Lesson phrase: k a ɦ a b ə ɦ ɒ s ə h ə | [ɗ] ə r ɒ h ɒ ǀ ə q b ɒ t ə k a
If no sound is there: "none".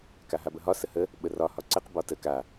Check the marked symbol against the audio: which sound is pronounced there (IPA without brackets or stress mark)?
ɓ